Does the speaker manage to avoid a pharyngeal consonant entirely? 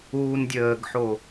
no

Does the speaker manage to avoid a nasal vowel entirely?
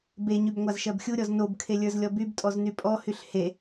yes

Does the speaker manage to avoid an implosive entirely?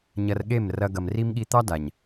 no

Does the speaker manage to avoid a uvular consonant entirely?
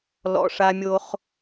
no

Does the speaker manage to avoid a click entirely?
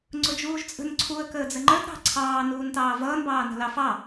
no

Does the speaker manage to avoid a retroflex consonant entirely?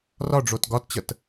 no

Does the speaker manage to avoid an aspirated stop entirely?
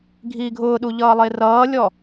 yes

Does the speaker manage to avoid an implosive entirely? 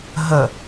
yes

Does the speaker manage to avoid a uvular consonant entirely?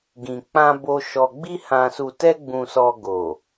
yes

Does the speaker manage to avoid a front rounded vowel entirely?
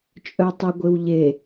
no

